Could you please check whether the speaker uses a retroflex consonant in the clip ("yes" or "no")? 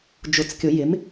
no